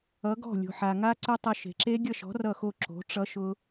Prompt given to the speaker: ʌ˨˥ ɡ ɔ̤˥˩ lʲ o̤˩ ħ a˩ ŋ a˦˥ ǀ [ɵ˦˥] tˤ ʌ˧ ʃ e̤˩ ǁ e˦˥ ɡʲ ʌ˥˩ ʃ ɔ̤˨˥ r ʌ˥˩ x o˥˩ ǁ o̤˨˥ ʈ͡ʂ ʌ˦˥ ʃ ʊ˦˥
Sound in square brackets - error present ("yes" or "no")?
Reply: no